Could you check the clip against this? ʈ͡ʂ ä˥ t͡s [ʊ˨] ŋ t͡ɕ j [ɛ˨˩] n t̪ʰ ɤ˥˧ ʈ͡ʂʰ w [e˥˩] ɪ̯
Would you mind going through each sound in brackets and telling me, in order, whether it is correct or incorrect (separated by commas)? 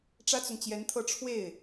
correct, incorrect, correct